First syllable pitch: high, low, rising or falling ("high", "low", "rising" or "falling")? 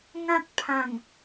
high